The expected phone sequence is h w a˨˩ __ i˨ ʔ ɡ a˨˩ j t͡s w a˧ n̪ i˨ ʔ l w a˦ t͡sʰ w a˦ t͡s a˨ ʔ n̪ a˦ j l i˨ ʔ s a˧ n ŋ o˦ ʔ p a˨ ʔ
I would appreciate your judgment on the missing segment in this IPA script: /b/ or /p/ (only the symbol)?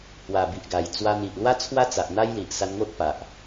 b